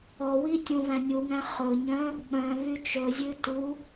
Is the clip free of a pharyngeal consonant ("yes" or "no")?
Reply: yes